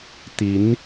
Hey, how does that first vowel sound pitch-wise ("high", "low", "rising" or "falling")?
rising